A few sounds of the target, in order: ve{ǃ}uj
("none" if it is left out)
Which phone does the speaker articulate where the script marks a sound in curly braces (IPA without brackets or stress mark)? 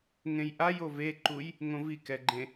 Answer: ǃ